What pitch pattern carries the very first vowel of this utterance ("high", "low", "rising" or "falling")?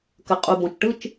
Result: low